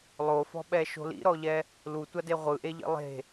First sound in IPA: lˠ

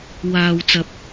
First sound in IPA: w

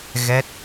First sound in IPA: ɣ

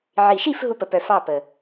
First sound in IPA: ʕ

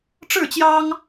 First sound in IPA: ʈ͡ʂ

